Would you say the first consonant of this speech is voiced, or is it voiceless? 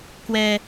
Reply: voiceless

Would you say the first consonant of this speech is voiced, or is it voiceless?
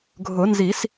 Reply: voiced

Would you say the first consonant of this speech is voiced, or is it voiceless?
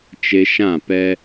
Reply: voiceless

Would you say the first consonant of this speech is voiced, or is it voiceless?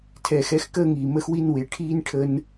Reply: voiceless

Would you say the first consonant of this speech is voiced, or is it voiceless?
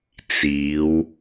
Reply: voiceless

